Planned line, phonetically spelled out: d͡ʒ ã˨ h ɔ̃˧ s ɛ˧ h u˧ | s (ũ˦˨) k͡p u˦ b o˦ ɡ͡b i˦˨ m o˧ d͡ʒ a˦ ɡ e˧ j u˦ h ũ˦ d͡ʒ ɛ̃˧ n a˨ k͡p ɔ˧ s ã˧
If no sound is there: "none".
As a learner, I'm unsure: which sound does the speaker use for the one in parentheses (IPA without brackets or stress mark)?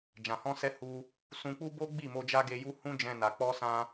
ũ˧